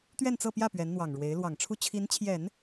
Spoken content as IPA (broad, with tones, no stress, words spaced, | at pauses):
t̪ɥɛ˥˧nt͡sɤ˥˧pjä˥˩ pɥɛ˧˥nn̪wɑ˨˩ŋɻwe˧˥ɪ̯ lwɑ˨˩ŋʈ͡ʂʰu˥˩ t͡ɕʰi˧˥nt͡ɕʰjɛ˨˩˦n